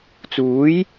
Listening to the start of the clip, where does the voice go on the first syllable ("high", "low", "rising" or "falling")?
rising